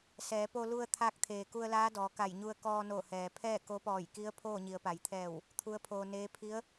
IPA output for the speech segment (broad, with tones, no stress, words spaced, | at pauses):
sɛː˩˧po˧ lu˧ə̯ t̪ʰaː˧˥k̚t̪ʰeː˩ku˧ə̯ laː˧˥dɔː˩˧ka˧˩jɲu˧ə̯ kɔː˧no˧˩ hɛː˩pʰɛː˥˨ ko˧˥pɔː˧˩jki˧˥ə̯ pʰoː˥˨ɲi˩˧ə̯pa˩j t̪ʰɛː˧˩w | t̪ʰu˧˥ə̯pʰoː˧neː˧˥ pʰi˧˥ə̯